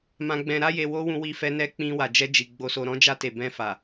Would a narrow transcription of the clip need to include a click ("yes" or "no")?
no